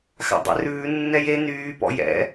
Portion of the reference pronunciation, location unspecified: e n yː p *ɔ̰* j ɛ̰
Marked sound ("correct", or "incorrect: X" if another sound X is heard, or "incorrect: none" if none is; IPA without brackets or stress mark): correct